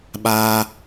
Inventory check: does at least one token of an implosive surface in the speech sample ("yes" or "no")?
yes